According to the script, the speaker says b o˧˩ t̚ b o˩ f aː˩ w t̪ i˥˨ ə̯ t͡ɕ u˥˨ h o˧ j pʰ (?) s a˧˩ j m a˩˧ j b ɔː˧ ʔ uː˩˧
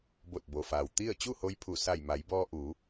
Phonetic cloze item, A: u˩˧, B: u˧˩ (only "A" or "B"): B